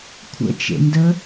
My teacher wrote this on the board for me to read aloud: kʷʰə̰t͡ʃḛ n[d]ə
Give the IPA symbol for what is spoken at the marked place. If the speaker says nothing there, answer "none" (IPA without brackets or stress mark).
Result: d